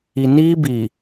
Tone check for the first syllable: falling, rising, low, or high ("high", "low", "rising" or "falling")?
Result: low